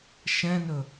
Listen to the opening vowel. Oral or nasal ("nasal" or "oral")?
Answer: nasal